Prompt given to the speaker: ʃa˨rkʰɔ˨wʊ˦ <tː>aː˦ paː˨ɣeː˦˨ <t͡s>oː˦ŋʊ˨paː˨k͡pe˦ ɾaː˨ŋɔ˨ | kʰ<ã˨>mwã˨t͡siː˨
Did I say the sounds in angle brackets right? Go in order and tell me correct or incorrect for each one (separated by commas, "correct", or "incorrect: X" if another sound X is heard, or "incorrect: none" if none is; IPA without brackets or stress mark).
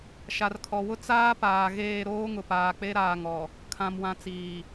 incorrect: t͡s, incorrect: ɾ, correct